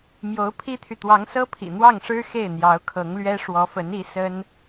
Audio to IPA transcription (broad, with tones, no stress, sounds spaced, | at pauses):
m j o˧˥ ʊ̯ pʰ i˥ t̪ʰ y˨ t̪ w ɑ˧˥ ŋ s ɤ˥ pʰ ḭ˨˩ n̪ w ɑ˥˩ ŋ ʂ ɻ̩˥ x e˥˩ ɪ̯ n̪ j ɑ˧˥ ʊ̯ kʰ ɤ˧˥ ŋ l ɥ ɛ˥ ʂ w ɔ˧˥ f ə˧˥ n i˧˥ s ə˥ n